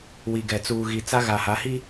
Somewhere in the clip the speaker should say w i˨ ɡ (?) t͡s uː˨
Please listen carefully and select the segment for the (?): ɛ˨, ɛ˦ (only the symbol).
ɛ˨